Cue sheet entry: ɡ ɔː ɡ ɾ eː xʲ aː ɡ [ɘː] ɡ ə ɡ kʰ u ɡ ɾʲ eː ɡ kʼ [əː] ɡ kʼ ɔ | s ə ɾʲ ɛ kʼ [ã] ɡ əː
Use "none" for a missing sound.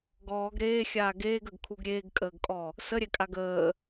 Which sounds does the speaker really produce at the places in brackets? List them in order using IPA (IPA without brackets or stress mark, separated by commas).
eː, əː, a